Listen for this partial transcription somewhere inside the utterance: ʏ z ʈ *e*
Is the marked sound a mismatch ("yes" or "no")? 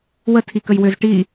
yes